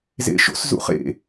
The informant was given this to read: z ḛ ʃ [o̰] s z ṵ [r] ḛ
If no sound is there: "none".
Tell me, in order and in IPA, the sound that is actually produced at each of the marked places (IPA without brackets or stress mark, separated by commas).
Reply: o̰, χ